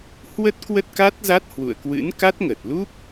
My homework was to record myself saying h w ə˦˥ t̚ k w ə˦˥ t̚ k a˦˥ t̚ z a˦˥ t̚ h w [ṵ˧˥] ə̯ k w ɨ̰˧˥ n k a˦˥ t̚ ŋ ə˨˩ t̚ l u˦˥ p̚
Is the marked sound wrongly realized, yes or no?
yes